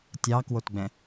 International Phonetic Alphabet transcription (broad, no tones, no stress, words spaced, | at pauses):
tʲɑkwotɡ͡bɛ̃